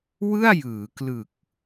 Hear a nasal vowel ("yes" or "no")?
no